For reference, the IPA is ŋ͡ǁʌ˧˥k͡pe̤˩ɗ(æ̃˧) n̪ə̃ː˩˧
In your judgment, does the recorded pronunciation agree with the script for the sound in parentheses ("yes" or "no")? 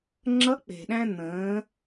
yes